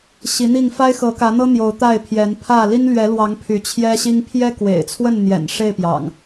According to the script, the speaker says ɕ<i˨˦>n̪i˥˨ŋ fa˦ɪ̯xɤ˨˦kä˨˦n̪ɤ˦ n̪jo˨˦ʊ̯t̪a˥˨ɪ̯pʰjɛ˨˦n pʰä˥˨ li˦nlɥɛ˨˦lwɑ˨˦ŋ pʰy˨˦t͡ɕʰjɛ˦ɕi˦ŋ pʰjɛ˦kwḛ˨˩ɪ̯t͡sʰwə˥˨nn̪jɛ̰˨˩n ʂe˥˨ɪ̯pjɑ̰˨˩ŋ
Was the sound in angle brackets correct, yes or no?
yes